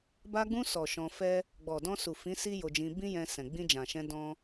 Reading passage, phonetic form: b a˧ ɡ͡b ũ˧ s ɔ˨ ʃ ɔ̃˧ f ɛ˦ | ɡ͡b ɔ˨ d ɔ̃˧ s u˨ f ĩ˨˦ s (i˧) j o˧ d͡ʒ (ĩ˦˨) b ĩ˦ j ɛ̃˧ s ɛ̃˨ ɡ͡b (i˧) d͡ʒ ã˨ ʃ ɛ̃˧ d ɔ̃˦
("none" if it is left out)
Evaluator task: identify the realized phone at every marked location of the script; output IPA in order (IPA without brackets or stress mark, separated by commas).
i˦, ĩ˧, ĩ˧